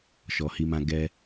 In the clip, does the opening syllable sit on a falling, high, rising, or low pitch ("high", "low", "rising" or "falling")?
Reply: low